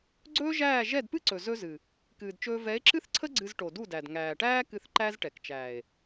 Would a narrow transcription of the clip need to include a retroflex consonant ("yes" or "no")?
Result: yes